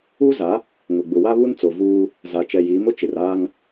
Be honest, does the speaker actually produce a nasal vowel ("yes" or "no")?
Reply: no